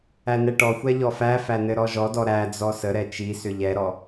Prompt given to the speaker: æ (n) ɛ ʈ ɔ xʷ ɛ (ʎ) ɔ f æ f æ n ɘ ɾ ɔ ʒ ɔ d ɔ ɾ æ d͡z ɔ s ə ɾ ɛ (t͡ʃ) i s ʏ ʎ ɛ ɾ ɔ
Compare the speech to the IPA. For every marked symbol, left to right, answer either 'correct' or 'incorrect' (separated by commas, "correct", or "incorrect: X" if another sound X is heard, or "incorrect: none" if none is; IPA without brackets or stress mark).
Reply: correct, correct, correct